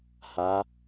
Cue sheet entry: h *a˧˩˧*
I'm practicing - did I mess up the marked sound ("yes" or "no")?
yes